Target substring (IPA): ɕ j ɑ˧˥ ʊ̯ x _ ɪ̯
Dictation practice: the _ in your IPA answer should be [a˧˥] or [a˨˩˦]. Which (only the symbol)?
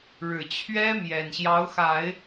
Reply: a˨˩˦